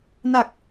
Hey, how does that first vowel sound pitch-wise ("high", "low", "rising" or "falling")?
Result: low